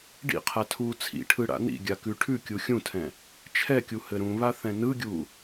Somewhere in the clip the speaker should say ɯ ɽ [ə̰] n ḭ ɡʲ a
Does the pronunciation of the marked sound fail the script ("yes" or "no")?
yes